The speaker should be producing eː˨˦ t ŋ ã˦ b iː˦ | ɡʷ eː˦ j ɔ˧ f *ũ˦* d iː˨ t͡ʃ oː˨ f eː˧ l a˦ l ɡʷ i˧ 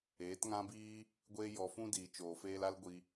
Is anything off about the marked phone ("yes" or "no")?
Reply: no